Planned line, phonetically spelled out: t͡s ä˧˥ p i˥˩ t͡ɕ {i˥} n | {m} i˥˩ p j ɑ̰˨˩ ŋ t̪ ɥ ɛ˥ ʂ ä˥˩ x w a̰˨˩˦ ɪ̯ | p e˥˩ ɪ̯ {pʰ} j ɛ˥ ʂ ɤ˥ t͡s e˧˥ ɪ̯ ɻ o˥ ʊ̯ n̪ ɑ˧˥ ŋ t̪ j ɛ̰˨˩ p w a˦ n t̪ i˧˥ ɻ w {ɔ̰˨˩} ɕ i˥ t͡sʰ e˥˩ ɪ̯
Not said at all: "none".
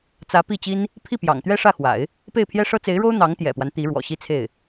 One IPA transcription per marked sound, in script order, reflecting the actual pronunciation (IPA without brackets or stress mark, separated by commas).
i˥, pʰ, pʰ, ɔ̰˨˩